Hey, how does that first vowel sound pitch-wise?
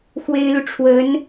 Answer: high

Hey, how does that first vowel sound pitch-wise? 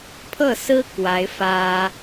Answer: falling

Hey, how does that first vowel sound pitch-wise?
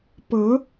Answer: rising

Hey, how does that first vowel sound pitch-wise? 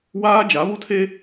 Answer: high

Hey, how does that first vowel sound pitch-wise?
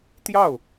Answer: falling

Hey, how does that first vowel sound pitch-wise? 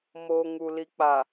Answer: low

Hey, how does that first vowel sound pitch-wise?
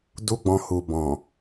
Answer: high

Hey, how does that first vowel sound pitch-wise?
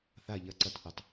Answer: low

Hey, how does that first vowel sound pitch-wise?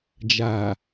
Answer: low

